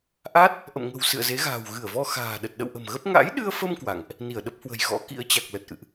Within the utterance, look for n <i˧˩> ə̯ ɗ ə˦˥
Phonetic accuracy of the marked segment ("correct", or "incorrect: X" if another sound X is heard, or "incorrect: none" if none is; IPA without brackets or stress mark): correct